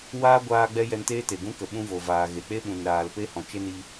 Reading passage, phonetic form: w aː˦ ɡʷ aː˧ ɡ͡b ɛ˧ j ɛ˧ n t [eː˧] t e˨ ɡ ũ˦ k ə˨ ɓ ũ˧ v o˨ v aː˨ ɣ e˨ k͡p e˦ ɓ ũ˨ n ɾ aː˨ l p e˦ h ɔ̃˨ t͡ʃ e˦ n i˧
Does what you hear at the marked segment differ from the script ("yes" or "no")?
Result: yes